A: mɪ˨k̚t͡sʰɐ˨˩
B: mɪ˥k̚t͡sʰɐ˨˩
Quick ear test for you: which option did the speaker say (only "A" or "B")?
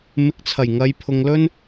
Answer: A